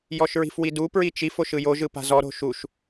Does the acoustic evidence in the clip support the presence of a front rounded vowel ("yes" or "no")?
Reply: no